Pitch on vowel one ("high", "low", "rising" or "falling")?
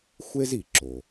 high